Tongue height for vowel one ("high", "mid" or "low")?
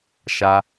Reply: low